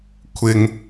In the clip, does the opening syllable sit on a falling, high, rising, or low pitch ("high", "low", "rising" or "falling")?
low